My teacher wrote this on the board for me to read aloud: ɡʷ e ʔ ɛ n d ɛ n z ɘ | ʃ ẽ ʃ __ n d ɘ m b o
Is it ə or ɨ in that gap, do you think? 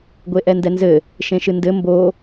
ɨ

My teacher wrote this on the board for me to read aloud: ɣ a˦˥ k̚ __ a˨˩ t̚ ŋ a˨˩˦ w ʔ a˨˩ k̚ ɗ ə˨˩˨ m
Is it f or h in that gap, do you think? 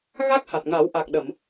h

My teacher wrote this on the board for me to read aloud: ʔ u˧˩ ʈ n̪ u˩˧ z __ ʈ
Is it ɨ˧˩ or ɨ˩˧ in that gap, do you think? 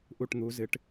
ɨ˩˧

